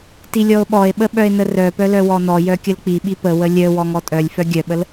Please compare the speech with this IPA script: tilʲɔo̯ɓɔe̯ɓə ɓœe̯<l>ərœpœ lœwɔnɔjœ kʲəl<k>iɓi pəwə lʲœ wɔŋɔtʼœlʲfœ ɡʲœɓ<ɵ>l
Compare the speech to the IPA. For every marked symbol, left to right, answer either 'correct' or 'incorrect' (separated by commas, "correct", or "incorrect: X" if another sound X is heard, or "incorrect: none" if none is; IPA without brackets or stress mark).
incorrect: n, incorrect: k͡p, incorrect: ə